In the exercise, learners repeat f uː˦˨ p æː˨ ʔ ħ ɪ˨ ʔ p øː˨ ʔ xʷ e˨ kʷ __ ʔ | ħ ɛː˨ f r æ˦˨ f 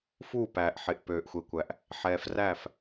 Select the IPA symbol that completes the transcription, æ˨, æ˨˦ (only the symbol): æ˨